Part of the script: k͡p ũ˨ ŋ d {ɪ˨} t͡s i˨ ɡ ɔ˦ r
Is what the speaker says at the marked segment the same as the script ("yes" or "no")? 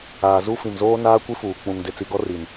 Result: yes